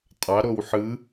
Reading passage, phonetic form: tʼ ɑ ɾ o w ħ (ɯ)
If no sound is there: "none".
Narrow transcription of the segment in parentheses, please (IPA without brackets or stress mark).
ɯ